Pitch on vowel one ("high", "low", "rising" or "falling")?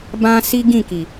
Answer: high